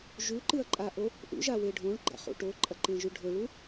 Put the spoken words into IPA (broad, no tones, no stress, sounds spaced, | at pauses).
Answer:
ʒ ʉ ǃ ɨ ɐ̯ ǃʼ a ʔ o | ʔ ṵ ʒ a w e ɖʱ õ ɭ ɡ͡ǃ a̰ χ ṵ ʈ o ǃʼ ɐ ǃ ẽ ʒ ʉ ɖʱ ɵ ɭ u